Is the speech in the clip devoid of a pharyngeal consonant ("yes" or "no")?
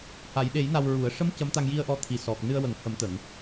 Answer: yes